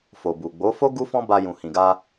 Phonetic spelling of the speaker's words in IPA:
f o˨ b u˨ ɡ͡b o˨˦ f o˦ ɡ u˦ f ɔ̃˦ b a˧ j ũ˨ h ĩ˨ ɡ a˧

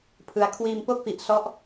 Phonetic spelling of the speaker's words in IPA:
pʰ ɯ˦˥ a̯ kʰ w iː˧ m p o˥˩ k̚ f i˨˩ ʔ s ɔ˦˥ ʔ

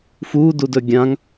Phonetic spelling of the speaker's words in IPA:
f u d u d ɵ ɡʲ ã ŋ

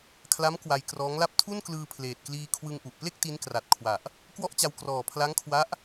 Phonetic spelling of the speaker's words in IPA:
kʰ l a˦˥ m k w a˧ j k r ɔː˦˥ ŋ l a˥˩ p̚ tʰ u˥˩ n k l ɯː˧ pʰ l eː˨˩ t̚ k l iː˧ kʰ w ɯ˧ ŋ ʔ u˨˩ ʔ p l e˥˩ k̚ t i˦˥ n k r a˨˩ t̚ kʰ w a˨˩ ʔ | k w ɔ˥˩ ʔ t͡ɕ a˧ w k r ɔː˨˩ pʰ l a˦˥ ŋ kʰ w a˦˥ ʔ

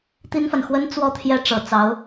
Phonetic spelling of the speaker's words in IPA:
t̪ i˥ n f a˨ n x w ə˥ n t͡s w ɔ˥˧ t̪ʰ j ɛ˥˩ ʈ͡ʂ ɤ˨˩ t͡s ɑ˧˥ ʊ̯

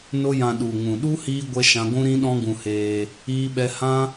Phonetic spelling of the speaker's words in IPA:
n o˦ j ã˧ ɗ u˨ ŋ ũ˨ ɗ u˦ h iː˦ ɡʷ ɛ˦ ʃ ã˦ ɡʷ ũ˦ ɾ ĩ˦ ɗ ɔ̃˦ ɡ ũ˧ h eː˧ | iː˦ ɓ ɛ˦ h ã˦

